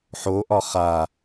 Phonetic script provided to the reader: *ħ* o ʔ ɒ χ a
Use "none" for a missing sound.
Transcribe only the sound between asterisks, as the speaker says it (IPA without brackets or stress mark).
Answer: ħ